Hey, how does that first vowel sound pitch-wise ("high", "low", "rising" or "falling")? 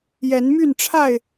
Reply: rising